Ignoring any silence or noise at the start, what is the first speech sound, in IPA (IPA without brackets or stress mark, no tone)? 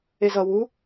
e